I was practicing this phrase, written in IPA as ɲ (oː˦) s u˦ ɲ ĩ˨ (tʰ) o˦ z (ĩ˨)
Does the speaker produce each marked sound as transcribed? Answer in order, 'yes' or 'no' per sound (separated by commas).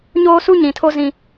yes, yes, no